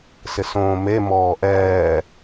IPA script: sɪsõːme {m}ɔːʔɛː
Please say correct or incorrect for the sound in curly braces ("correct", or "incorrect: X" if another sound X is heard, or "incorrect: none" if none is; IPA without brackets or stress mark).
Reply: correct